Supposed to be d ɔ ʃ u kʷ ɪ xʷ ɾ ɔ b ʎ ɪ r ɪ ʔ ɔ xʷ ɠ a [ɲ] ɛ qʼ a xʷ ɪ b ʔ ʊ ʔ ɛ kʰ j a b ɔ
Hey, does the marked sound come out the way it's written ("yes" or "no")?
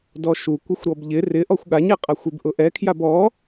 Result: yes